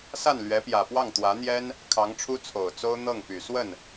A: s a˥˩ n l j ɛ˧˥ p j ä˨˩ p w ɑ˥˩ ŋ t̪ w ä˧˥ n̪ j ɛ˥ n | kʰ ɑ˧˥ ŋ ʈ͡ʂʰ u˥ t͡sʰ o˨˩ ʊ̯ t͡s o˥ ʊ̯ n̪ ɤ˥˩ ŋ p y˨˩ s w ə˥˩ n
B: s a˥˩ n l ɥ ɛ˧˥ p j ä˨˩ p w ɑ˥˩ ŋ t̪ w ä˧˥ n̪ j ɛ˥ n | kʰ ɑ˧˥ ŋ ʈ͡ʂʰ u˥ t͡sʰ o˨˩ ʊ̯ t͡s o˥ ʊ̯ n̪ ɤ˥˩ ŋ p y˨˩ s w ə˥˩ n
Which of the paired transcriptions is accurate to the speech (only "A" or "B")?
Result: B